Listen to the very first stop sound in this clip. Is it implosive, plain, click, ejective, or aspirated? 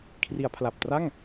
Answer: aspirated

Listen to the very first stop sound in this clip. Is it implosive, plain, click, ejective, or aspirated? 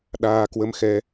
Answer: implosive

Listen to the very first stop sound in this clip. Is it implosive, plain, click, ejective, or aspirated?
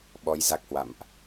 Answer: implosive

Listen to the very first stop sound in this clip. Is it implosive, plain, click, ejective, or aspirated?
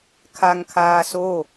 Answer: aspirated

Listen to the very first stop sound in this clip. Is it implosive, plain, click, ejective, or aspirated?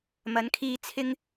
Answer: aspirated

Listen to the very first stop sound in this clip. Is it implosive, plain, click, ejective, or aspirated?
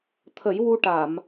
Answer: aspirated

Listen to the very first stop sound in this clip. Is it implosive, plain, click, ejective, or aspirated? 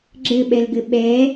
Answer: click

